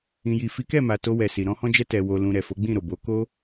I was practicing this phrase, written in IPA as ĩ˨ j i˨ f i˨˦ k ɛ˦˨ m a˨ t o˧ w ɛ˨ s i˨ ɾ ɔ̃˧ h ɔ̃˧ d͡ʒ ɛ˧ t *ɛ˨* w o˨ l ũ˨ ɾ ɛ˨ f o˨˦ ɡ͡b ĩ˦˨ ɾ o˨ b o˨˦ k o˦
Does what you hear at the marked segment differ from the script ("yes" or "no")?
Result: no